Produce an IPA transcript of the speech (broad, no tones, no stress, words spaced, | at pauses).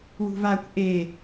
wṳvakʷ ʔe